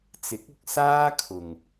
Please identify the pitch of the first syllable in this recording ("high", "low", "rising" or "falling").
rising